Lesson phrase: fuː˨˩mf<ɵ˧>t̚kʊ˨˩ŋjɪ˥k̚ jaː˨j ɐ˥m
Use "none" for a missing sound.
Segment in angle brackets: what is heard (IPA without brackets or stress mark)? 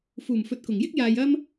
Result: ɵ˨